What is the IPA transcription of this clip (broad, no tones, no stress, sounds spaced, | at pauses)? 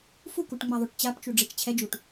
f u k u ʈ ŋ͡m ɛ ðˤ o ʈ t͡ɕ a p t͡ʃ u ɖ͡ʐ e t͡ʃ t͡ɕʰ ɛ d͡ʒ u ʈ